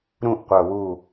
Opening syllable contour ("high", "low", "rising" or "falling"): falling